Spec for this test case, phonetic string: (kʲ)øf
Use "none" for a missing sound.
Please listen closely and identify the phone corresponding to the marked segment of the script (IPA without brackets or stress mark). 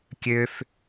kʲ